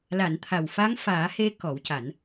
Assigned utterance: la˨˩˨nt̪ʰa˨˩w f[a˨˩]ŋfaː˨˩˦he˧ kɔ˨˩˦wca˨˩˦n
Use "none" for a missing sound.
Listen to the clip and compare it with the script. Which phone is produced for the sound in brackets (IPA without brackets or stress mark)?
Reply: a˧˥